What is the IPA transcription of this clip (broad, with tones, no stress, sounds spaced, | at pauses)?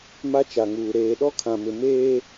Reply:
m a˦ t͡ʃ a˨ ŋ uː˨ ɾ eː˨ ɗ ɔ˦ kʰ ã˨ m ɪ˨ m eː˦